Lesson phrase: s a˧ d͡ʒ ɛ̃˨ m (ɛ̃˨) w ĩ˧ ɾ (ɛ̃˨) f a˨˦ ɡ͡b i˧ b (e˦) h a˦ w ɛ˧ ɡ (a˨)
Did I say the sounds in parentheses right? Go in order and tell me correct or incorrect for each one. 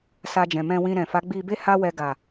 incorrect, correct, correct, correct

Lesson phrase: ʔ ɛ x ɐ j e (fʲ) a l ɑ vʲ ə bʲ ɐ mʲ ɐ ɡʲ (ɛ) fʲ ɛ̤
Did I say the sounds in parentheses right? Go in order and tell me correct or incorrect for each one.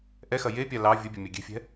incorrect, incorrect

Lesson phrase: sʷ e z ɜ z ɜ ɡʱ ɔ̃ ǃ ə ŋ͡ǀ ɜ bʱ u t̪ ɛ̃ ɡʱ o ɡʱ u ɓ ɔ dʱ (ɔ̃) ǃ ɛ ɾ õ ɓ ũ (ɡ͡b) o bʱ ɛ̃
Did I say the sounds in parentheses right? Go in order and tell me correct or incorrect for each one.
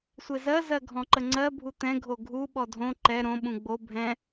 incorrect, correct

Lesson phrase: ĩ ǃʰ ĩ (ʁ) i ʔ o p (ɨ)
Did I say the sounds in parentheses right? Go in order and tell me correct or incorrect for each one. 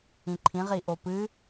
correct, correct

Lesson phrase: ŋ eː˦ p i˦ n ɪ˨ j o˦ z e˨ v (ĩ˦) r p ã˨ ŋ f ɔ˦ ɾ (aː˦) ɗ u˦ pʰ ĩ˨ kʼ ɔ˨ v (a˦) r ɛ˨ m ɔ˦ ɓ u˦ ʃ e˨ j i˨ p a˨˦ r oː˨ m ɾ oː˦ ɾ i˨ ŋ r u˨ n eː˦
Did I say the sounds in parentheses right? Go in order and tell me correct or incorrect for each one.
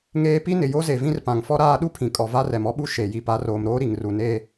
correct, correct, correct

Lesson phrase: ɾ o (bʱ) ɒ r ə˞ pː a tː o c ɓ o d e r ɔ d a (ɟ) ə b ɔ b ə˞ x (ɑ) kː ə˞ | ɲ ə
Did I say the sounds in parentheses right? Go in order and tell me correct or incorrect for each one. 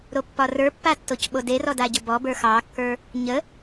incorrect, correct, correct

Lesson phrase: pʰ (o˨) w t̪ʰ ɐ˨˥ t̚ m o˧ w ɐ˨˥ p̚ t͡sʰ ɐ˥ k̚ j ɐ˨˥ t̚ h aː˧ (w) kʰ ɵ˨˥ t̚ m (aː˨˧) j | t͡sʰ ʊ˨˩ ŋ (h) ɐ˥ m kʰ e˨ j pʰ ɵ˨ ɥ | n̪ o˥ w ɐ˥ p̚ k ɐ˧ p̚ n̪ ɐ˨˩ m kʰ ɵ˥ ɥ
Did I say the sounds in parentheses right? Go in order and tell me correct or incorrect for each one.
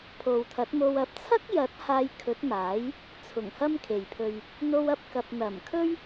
correct, incorrect, incorrect, correct

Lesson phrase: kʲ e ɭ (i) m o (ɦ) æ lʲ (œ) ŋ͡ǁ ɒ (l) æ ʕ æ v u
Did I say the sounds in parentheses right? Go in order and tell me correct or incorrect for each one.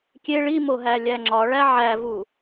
correct, correct, incorrect, incorrect

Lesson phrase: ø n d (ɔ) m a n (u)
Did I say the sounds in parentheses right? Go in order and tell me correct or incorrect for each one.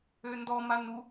correct, correct

